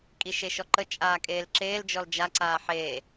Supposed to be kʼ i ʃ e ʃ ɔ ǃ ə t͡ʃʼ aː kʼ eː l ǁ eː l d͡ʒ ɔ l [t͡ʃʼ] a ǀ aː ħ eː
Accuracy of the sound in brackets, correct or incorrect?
incorrect